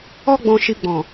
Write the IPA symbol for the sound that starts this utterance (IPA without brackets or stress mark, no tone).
ɔ